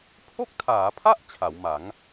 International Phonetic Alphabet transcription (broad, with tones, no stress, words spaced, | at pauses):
pʰo˥˩k̚tʰaː˩˦pʰa˥˩ʔ t͡ɕʰa˩˦wma˩˦ŋ